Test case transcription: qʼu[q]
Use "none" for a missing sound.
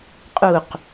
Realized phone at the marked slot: q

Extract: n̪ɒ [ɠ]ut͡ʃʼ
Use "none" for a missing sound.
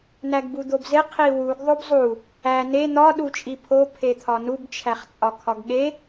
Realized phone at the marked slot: ɗ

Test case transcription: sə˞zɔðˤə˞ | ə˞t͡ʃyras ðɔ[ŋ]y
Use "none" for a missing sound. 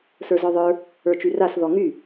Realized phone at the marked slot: ŋ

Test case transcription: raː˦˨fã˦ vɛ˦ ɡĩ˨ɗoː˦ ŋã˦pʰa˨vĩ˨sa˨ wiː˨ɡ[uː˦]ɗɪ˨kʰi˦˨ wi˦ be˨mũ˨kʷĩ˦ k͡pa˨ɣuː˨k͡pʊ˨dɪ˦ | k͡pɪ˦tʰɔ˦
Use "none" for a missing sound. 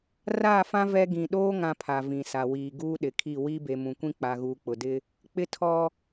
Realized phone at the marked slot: uː˦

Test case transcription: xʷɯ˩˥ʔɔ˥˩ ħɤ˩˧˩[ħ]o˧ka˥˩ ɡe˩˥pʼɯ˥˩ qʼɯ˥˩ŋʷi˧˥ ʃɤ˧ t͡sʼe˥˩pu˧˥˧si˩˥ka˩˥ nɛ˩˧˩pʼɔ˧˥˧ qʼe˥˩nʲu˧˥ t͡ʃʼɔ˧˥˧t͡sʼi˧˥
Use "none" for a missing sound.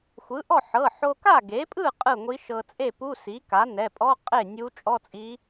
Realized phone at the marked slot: ħ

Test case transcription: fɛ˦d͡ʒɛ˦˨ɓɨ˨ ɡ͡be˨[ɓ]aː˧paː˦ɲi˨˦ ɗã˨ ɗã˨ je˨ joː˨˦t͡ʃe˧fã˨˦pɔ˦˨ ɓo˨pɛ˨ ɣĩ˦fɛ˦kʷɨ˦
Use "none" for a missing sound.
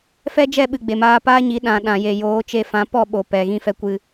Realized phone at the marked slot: m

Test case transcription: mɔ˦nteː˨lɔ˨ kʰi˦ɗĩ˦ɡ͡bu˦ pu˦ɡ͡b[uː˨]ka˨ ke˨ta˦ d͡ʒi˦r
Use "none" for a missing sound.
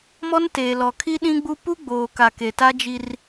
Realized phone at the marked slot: oː˨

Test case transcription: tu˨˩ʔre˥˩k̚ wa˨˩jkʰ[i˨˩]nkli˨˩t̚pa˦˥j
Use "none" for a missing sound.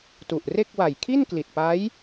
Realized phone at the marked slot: i˥˩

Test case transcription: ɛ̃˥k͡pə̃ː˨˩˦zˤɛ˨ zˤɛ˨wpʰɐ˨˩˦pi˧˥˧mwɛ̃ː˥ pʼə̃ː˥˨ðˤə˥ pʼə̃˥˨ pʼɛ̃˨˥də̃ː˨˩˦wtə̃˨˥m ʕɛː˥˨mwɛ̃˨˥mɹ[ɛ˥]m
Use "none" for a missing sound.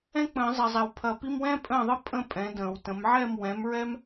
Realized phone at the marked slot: ɛ˥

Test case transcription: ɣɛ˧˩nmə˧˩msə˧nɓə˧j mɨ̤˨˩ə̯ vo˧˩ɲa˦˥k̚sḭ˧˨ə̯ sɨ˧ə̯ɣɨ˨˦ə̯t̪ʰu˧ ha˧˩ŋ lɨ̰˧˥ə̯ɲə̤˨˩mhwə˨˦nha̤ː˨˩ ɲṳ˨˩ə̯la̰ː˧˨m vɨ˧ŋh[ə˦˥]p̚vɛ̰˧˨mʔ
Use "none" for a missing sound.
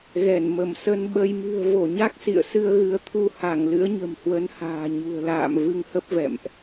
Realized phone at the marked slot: ə˦˥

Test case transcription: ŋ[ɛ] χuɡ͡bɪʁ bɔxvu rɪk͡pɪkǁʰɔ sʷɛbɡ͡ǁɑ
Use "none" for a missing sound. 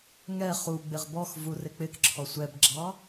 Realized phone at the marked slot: ɛ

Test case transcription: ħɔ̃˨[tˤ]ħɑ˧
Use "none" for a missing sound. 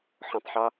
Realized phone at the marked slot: tˤ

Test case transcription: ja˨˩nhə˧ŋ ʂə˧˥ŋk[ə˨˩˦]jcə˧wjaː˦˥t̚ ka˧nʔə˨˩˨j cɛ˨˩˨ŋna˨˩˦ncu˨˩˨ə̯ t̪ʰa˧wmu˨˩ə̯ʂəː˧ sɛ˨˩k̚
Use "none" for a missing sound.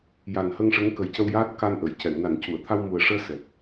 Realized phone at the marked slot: ə˨˩˦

